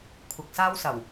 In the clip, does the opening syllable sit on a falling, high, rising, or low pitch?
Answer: low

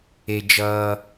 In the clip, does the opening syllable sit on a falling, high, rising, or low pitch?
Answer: low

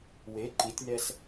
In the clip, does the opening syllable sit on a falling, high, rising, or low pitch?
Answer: rising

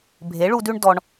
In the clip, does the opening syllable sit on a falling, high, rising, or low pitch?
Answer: rising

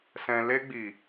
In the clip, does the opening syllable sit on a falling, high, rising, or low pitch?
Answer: low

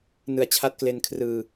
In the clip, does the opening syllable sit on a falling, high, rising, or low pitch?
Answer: low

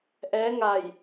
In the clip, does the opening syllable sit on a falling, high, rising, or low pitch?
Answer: rising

